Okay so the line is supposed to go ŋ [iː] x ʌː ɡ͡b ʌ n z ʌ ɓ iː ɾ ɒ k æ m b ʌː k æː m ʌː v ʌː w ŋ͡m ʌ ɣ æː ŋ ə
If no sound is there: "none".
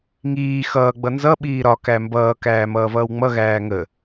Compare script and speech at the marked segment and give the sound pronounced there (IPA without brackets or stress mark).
iː